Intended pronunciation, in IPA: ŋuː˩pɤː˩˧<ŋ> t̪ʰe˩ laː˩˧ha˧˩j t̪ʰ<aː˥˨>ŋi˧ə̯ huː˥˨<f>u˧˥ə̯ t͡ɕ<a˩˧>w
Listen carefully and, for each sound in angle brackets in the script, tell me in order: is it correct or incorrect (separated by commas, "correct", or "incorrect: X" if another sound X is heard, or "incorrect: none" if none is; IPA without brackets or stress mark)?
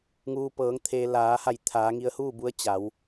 correct, incorrect: aː˩˧, incorrect: b, correct